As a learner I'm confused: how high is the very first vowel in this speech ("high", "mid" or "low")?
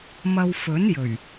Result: low